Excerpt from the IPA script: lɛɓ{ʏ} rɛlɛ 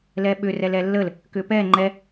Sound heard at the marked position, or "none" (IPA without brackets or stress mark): ʏ